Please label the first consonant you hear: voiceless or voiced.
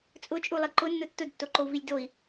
voiceless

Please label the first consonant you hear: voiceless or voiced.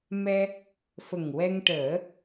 voiced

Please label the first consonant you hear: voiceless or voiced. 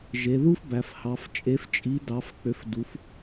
voiced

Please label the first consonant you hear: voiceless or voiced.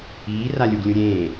voiced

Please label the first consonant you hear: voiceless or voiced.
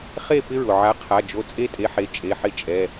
voiceless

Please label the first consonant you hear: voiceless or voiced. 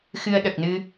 voiceless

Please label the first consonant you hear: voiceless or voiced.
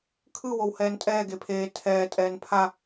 voiceless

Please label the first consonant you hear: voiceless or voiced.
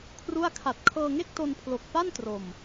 voiceless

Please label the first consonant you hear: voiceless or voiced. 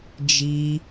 voiced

